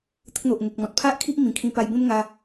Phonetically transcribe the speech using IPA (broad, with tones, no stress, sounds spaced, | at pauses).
t̪ ə˦ k̚ n̪ o˨ ʔ ŋ e˨ k̚ m ɔ̃˨ t̚ pʰ a˦ ʔ kʰ i˦ ʔ m ĩ˨˩ kʰ ĩ˧ p a˧ j b ẽ˦ m ŋ a˧